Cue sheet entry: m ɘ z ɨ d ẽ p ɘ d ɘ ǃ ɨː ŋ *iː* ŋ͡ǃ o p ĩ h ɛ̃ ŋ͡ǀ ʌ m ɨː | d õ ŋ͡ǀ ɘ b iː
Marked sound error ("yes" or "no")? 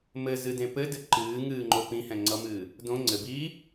yes